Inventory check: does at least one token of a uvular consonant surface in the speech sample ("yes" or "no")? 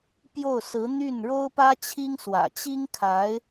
no